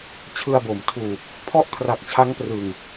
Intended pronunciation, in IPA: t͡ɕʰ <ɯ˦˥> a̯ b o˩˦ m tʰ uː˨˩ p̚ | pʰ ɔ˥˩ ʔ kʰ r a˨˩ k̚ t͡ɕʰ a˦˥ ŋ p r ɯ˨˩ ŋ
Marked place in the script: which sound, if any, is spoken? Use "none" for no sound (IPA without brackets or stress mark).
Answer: ɯ˧